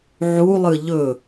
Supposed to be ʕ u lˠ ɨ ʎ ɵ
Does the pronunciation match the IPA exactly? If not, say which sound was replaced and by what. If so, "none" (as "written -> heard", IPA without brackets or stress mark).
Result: none